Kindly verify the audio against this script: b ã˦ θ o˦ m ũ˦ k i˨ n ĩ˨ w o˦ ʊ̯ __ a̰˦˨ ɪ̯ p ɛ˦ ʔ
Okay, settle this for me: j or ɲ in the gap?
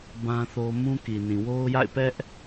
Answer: j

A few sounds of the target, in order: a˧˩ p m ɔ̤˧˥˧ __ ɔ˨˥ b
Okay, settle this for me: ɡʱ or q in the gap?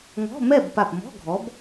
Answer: ɡʱ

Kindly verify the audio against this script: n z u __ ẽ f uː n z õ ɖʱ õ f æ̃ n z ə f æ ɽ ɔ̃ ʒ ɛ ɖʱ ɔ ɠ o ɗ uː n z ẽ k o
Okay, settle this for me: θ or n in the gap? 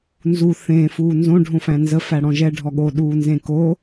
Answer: θ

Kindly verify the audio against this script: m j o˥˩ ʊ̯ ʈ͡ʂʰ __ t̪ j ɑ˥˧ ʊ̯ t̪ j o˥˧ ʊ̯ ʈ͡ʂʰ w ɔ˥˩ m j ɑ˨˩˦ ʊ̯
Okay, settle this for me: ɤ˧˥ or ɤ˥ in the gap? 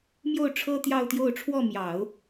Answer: ɤ˥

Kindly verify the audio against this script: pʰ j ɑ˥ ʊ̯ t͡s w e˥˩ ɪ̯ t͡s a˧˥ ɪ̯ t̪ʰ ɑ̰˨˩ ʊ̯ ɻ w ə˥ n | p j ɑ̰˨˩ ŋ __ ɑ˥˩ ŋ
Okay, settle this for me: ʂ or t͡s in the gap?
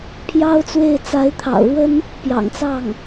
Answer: t͡s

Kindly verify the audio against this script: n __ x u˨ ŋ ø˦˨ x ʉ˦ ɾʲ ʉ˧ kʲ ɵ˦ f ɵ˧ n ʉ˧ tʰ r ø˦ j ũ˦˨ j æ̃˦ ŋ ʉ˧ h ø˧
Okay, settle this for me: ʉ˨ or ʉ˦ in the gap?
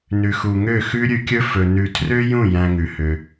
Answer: ʉ˨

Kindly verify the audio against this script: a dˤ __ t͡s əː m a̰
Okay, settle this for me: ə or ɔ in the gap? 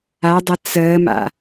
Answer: ə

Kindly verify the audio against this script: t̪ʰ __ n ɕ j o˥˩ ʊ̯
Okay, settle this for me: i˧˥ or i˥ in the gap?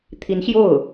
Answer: i˧˥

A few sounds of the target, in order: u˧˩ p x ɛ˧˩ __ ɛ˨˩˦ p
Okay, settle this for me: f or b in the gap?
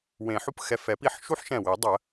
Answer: f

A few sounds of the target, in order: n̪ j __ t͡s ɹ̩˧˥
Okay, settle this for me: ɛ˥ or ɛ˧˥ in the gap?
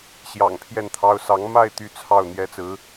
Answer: ɛ˥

